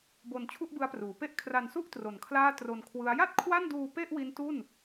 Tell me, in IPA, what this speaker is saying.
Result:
b o˧ n t͡ɕʰ u˥˩ ʔ b ɯ˦˥ a̯ p r uː˩˦ p e˦˥ ʔ kʰ r a˧ n s u˥˩ ʔ t r o˨˩ n kʰ l aː˥˩ t r o˧ n kʰ w ɯ˦˥ a̯ j a˥˩ t̚ kʰ w a˥˩ n d uː˧ p e˥˩ ʔ w i˦˥ n t u˥˩ n

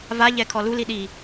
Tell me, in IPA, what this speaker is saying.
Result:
v a ʎ ɛ kʰ ɔ l u l i ɗ i

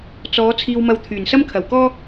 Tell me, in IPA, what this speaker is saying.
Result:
t͡s ɔː˨˧ t͡sʰ iː˧ w m ɐ˧ w t̪ʰ yː˨˩ n s ɐ˥ m kʰ ɐ˨ w k ɔː˥

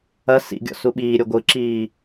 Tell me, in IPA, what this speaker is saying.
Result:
ɐ s ḭ ɡʲ ɔ̰ s u ɓ iː ɾʲ o ɡʷ ɯ ǁ iː

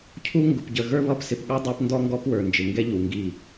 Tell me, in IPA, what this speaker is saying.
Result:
cʰ u˦ ŋ ɡ ʊ˨ p ɟ ə˨ ɣ ə˞˦ β ʌ˦˨ p s ɪ˨ p ɠ ɑ˦ dˤ ɑ˦ p n d ɔ˦ ŋ ɡ ɔ˦ p w ə˞˨ n d͡ʒ ɪ˨ ŋ ɡ ɛ˦ ʎ u˨ ŋ ɡ i˦˨

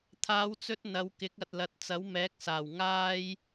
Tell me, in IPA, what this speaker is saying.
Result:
t̪ʰ aː˨˧ w t͡s ɵ˧ t̚ n̪ ɐ˨˧ w k ɪ˨˥ k̚ ɐ˨ t̚ l ɐ˨ t̚ t͡s ɐ˨˥ w m ɛː˨˥ k̚ s aː˨˩ w ŋ aː˥ j

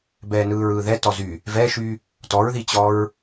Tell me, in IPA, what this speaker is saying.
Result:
b ɛː n ɯː ɹ ɯː ð ɛ t ɔ z y | v ɛ ʃ y | t ɔ ɹ ð i t͡ɕ ɔ ɹ

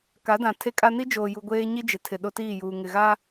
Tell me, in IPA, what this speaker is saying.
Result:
k a˨˦ d ã˨ tʰ e˦ kʼ a˦ n i˦ d͡ʒ oː˨ j u˨ ɡʷ eː˦ ɲ i˦ d͡ʒ ɪ˨˦ tʰ ɪ˨ ɗ o˦ t iː˦˨ j uː˨ ŋ ɪ˨ ɣ a˦

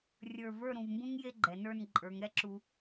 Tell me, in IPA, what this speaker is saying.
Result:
rʲ ə˞˧˩ v ə˞˥˧ ɾ ũ˩˧ v m b ũ˥ ŋ j e˥ ɡ͡ǃ ɛ˩˧ n ə˞˥˧ n ǃʼ ə˞˩˧ ŋ ɾ ɛ˥ ǁ u˧

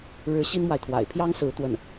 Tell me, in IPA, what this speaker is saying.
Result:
ɻ ɻ̩˧˥ ɕ i˥ n m w a˨ ɪ̯ t̪ʰ w a̰˨˩ ɪ̯ pʰ j ɑ˥ ŋ s ɹ̩˧˥ t̪ w ə˥˩ n

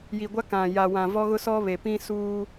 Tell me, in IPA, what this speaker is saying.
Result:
j i˨ ɡʷ a˦ k ã˨ j a˨ w ã˨ v ɔ˦ ɣ ʊ˦ s ɔ˦ β e˨ p ĩ˦ s uː˦

